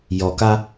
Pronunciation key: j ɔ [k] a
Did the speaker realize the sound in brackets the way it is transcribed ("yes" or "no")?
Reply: yes